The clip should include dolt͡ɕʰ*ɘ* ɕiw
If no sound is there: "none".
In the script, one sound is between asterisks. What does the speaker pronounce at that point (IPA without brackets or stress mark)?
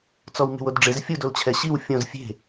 ɛ